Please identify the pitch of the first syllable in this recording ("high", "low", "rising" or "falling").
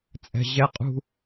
low